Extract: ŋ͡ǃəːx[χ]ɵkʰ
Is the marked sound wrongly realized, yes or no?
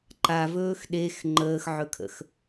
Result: yes